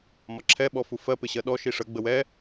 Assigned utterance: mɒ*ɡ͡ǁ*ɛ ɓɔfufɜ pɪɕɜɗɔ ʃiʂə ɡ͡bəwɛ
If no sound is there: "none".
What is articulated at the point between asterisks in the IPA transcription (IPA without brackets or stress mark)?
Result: ǁʰ